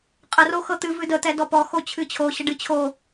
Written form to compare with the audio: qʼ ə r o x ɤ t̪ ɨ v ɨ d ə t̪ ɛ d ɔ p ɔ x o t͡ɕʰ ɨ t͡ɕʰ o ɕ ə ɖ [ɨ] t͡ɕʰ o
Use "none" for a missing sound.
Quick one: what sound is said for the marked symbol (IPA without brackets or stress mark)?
ɨ